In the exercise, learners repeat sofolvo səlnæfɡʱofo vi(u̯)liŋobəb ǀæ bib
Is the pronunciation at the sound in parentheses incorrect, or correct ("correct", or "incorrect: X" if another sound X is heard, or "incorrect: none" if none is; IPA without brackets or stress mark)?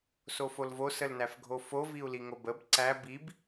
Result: correct